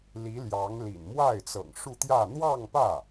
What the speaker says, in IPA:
l i˧˥ l j ɑ˧˥ ŋ l ḭ˨˩ n m w a˥˩ ɪ̯ t͡s ɤ̰˨˩ ŋ ʂ u˥˧ t̪ j ä˥˧ n̪ w ɑ˥˧ ŋ p ä˥˩

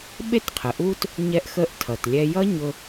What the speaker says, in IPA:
ɓ e˥ t qʰ ə˩ ʔ u˥ t | ɲ ɛ˧ ʔ x ə˧ ʔ tʰ ʌ˩ t lʲ ɛ˧ j ʌ˥ ɲ ʊ˧

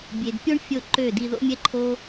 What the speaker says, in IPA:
bʲ e˨ d pʲ o˦ ɳ fʲ o˦˨ ǃ ø˦˨ d i˧ ð o̰˦ mʲ ɛ˦ ǃʰ o˦

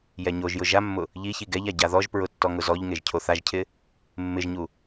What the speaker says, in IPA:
j ɛ ɲ o ʒ j ʊ ʒ a mː ʊ | ʎ i ç i ɡ ɛ ʎ a ɟ a ð ɔ ʒ p ɹ ʊ tː ɔ ŋ ʊ z ɔ ʎ ŋ e ʒ cʰ o θ a ʒ cʰ ɪ | mː ɪ ʒ ɲ u

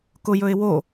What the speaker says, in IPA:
k ʊ j ɵ ɪ̯ w o

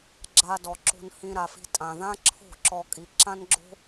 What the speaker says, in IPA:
ɡ͡ǁ a˧ d ɔ˩ ǁ o̤˧ n h ĩ˧ ɾ a˩ f i̤˧ tʼ ã˩ ð ã˥ ǁʰ o̤˥˩ ǁ ɔ˧ kʼ i˩˥ ǁ ã˥ n ɡ͡ǁ o̤˥

